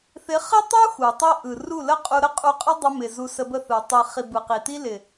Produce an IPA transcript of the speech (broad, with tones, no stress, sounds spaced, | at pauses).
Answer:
θ ɪ˨˦ χ ɪ˦ tˤ u˦ x u˨ tˤ i˦ ʔ ɯ˨ r u˦˨ l ə˦ qʼ u˧ ɾ ə˦ qʼ u˧ qʼ ə˦ dˤ ɪ˧ m ɪ˨ z u˧ s ə˧ b ə˦˨ θ ɯ˨ tˤ i˨ χ i˨ b ɯ˨ q i˨ t i˦ l ɪ˨